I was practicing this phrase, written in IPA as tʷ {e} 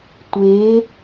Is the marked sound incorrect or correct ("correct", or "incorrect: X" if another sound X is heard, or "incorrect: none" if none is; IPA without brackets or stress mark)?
correct